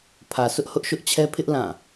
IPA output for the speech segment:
pʰä˨sʰʊ˦ʔhʊ˦ʔ ʃʊ˦ʔt͡ɕʰɛ˦ pʰɪ˦ʔ lã˦˨

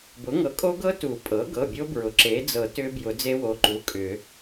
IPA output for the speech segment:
bʊ˩˥ŋɤ˩˥kʼo˦˥ɡɤ˦˥ tu˨˩˦pʼɤ˩˥ɡɤ˩˧˩ bʲo˦˥bɹʊ˩˥ ǁe˩˥d͡zɤ˨˩˦ tʏ˦˥bjʊ˨˩˦ d͡ze˦˥wo˩˧˩ ǃu˩˧˩kʼʏ˨˩˦

